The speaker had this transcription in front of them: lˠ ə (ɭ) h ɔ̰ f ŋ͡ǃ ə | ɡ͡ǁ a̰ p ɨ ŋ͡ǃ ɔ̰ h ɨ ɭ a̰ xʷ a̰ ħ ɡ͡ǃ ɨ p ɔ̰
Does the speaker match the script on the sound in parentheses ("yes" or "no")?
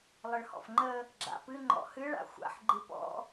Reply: yes